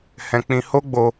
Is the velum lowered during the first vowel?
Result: yes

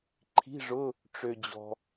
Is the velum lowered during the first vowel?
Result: no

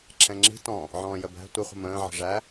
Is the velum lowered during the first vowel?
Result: yes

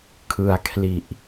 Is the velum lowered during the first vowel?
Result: no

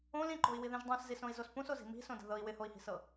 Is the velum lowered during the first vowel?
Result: yes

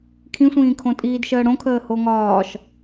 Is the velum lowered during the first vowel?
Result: yes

